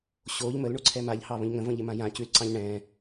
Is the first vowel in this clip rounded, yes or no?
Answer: yes